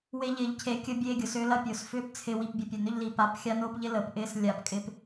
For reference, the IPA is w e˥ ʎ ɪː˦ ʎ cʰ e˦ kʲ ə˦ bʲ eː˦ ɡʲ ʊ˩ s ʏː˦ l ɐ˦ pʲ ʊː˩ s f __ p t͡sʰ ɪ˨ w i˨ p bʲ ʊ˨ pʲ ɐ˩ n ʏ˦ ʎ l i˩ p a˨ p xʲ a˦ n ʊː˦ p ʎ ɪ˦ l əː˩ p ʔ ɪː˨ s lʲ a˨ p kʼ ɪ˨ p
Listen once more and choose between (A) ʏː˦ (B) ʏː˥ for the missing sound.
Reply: A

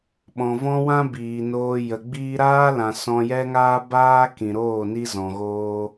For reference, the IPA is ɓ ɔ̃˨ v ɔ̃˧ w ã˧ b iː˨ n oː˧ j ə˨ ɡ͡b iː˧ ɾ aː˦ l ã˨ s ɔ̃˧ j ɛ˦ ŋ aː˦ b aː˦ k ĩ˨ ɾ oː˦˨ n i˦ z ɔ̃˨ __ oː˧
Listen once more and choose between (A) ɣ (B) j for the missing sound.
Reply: A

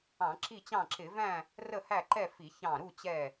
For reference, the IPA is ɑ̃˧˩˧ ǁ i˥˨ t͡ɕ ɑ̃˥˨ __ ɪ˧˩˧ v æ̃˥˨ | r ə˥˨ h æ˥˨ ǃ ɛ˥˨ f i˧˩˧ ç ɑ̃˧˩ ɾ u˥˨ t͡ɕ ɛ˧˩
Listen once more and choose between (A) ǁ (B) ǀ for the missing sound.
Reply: A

